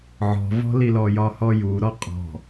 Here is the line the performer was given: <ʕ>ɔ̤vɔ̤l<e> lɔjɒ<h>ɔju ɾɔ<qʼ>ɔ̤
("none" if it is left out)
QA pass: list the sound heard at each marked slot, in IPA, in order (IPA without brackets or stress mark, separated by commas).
ʕ, i, h, qʼ